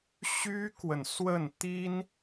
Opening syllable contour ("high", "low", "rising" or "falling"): high